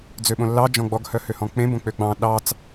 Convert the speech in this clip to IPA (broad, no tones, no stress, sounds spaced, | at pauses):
d͡z ø ɓ õ lː ɑ d͡ʒ ɔ̃ ɡ͡b ɔ ɡ h œ h ø h ɔ̃ k͡p ẽ b õ k͡p ø ɡ͡b ɑ̃ ɗ ɑ t͡s